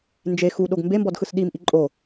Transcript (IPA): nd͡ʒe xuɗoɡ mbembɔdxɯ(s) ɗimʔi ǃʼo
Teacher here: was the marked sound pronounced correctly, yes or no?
yes